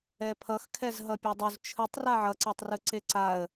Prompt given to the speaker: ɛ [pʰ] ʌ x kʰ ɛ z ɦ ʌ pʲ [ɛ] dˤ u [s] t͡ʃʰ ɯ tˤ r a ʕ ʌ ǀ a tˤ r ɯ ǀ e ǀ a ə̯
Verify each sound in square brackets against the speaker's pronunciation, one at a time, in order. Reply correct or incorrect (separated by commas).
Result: correct, correct, incorrect